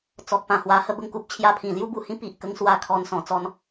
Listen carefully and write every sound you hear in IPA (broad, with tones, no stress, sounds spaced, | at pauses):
t͡s ɔ˨ k̚ p ã˨˩ h w a˧ h ə˥˧ b ə˥˧ ŋ k u˦ p̚ t͡ɕʰ j a˦ pʰ ĩ˨˩ l j u˦ b u˨˩ h ĩ˦ p i˨ ʔ k ə˧ ŋ s w a˧ kʰ ɔ˨˩ n s ɔ̃˨˩ t͡s ɔ˧ n